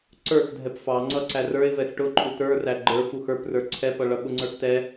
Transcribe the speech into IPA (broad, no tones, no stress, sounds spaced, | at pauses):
ǀ ə˞ x dʱ ɛ p f ɑ ŋ͡ǀ ʌ ǀ æ r ə˞ ɪ̯ v ɛ x ʈ ʊ ǃʼ u t ə˞ r æ ɡ͡ǃ ə˞ f u x ə˞ p r ə˞ ǀʰ ɛ p ʌ ɭ ʌ ɓ ʊ ŋ͡ǀ ə˞ x t ɛ